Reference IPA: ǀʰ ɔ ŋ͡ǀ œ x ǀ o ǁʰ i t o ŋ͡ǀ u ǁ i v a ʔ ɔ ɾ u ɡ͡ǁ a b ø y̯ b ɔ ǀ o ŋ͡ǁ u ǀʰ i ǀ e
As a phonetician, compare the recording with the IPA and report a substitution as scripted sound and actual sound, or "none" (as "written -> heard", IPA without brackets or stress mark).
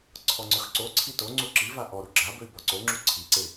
ǁʰ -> ǀʰ